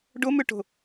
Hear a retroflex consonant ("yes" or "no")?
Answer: yes